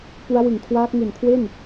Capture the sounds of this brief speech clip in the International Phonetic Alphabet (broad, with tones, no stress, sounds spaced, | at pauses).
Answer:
p u˦˥ a̯ w ɯ˨˩ ŋ kʰ w aː˦˥ k̚ ŋ u˨˩ n kʰ w e˥˩ n